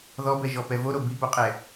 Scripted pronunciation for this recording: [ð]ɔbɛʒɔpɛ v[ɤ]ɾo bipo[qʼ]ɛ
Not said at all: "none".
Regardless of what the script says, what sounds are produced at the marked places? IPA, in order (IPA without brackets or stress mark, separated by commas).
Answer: ð, o, qʼ